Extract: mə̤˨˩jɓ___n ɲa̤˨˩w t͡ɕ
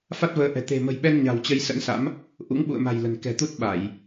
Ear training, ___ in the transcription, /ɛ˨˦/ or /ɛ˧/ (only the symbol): ɛ˧